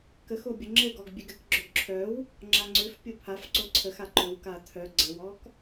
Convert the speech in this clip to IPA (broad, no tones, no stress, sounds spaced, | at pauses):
k ə x o bʲ ə ŋ͡ǁ ɘ ɡ ɔ ɡ bʲ ø ɡ ɘ k ɡ͡ǁ œ ɡ ǁʰ œ w | ŋ͡ǁ a ŋ͡ǀ ø f pʲ o pʰ a f ǀ o ǀʰ ə x a ǃ ɵ w k a tʰ œ ɡ͡ǀ ə w ɔ k